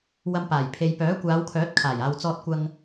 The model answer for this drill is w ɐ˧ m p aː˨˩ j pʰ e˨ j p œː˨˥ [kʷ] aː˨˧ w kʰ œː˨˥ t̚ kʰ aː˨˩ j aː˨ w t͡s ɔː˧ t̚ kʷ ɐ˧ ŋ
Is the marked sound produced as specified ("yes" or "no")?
yes